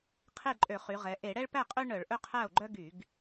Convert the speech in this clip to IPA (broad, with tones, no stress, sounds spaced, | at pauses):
qʰ e˥˩ ǃʼ ø˧˩˧ χ y˩˧ ʁ ɛ˩˧ ʔ e˧˩˧ ɽ ɛ˦ ɭ p æ˥˩ qʼ ø˦ ɳ œ˧˩˧ ɭ ʔ ɵ˦ qʰ æ˥˩ o̯ ɡ͡ǃ œ˦ ɡ y˧˩˧ ɡ